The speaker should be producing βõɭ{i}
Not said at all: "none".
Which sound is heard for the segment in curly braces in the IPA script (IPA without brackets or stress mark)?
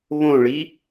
i